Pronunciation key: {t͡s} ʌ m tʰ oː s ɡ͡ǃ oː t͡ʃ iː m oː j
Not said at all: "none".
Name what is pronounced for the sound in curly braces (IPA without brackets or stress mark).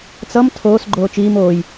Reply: t͡s